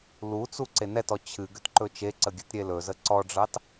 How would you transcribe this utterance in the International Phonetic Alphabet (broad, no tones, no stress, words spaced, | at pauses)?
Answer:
lut͡su ǀenɛtɔ t͡ɕʰɨ ɡʏtǃɵt͡ʃeǀə ɡʲɨtɾʲelɵzə ǀɔɖ͡ʐɑt